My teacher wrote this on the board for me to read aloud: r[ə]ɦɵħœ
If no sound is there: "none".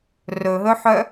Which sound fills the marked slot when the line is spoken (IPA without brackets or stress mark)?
ɵ